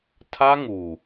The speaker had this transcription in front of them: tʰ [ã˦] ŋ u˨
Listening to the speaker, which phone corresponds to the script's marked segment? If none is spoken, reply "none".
a˦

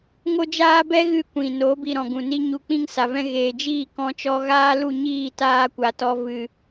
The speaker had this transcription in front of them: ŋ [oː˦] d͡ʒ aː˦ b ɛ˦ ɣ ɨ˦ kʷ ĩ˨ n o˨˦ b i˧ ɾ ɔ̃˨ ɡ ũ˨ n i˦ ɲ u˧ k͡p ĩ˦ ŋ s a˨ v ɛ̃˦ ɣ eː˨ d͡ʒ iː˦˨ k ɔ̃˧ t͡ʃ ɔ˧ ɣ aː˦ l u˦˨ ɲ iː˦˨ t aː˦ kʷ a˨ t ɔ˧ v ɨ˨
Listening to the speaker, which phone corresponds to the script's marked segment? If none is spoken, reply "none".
o˦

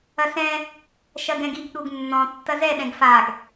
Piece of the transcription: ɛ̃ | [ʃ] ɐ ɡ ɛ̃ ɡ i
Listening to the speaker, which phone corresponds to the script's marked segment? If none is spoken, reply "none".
ʃ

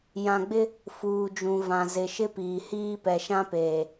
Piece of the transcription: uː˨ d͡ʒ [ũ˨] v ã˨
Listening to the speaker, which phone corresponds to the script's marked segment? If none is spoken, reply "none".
ũ˨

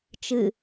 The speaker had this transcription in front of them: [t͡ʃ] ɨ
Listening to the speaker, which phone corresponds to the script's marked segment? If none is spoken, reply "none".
t͡ʃ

